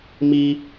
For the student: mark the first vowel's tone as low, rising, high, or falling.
high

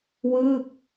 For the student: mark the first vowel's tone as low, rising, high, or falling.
falling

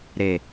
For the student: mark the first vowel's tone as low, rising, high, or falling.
low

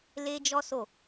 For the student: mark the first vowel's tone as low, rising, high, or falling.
high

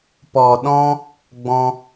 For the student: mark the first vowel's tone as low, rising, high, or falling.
low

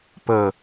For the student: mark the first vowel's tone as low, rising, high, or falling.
low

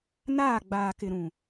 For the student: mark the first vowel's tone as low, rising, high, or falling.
falling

